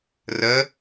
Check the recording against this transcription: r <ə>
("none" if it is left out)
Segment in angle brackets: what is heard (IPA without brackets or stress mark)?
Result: ə